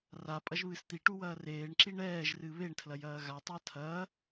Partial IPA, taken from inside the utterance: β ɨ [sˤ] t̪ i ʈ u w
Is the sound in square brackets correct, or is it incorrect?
incorrect